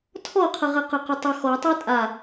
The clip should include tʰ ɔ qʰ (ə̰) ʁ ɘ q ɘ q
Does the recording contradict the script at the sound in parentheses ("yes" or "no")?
yes